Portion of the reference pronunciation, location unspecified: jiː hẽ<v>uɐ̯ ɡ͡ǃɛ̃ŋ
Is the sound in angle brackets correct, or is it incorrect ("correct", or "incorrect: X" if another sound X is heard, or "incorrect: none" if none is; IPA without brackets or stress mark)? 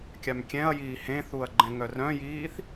incorrect: θ